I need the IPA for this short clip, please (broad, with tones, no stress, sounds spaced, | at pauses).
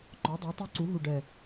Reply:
ŋ͡ǃ ɔ˩˥ dˤ ə˩˥ i̯ tˤ u˧˥ ǀ u˩˥ ɦ u˨˩ ɖ ɛ˨˩